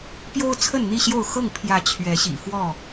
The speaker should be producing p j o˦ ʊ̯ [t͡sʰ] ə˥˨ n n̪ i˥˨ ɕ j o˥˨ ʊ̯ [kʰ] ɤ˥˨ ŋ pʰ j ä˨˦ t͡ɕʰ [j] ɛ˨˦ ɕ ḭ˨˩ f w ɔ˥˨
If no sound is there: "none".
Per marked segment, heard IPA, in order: t͡sʰ, x, ɥ

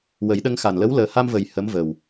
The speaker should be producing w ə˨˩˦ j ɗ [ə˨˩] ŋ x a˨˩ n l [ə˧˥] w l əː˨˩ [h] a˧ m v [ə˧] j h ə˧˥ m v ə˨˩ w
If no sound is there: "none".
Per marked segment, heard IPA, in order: ə˧, ə˧˥, h, ə˨˩

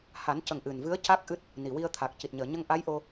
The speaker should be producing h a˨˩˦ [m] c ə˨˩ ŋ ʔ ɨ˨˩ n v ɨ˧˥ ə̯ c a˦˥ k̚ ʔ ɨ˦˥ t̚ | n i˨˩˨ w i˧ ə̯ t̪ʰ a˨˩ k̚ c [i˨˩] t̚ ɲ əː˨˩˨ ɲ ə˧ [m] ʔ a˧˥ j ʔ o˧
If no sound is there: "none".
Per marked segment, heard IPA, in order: n, i˨˩, ŋ

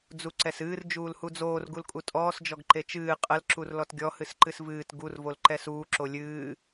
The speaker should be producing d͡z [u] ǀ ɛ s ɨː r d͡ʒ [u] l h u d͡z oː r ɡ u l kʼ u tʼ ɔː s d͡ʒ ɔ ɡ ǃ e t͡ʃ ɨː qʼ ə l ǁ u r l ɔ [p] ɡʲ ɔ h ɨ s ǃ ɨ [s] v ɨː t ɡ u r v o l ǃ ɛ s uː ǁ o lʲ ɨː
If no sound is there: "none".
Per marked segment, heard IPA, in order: u, uː, t, s

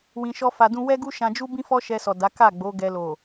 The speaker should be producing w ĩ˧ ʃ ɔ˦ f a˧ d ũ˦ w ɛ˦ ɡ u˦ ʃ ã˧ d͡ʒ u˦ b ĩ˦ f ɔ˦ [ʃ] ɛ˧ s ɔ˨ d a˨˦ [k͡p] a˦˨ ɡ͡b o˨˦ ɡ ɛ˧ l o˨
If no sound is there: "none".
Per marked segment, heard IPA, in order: ʃ, k

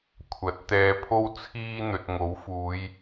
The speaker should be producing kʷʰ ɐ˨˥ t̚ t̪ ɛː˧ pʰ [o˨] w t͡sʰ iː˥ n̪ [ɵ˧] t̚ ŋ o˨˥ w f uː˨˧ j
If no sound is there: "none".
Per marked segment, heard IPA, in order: o˥, ɵ˨

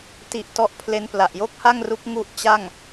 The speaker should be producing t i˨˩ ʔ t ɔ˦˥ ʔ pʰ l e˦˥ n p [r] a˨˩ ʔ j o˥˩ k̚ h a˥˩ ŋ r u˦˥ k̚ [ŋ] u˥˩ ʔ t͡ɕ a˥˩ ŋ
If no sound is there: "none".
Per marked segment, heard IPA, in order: l, ŋ

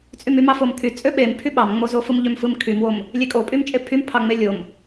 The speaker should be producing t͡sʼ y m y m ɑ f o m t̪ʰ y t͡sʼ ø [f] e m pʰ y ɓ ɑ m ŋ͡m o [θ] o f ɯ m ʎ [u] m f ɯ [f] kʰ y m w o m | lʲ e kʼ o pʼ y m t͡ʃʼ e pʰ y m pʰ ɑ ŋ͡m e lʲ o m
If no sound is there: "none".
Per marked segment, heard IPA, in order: ɓ, z, ø, m

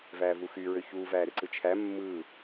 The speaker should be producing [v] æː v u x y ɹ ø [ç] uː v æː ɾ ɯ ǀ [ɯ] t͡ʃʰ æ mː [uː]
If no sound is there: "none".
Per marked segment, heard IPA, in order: v, ç, ɯ, ɯː

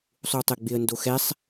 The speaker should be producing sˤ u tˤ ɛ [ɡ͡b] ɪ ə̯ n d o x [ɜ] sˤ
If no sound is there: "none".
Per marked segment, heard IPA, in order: ɡ͡b, ɛ

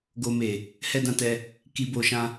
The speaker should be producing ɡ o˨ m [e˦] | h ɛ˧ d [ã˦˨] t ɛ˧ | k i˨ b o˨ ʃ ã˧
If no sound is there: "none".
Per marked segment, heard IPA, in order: e˨, ã˧

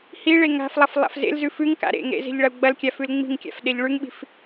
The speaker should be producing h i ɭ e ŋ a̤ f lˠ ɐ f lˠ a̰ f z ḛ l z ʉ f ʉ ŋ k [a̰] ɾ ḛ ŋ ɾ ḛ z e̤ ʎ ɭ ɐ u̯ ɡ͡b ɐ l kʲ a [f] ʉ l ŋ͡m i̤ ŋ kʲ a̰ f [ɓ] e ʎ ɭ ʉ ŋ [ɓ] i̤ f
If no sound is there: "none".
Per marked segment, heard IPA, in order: a̰, f, ɗ, ɓ

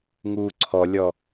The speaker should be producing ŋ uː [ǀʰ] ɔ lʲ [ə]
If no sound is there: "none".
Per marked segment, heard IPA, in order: ǀʰ, ɔ

